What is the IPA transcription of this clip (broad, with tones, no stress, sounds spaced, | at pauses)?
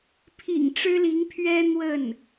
pʰ ḭ˨˩ ŋ ʈ͡ʂ ɻ̩˥ l i˧˥ ŋ pʰ ɥ ɛ˥ n̪ w ə˥˩ n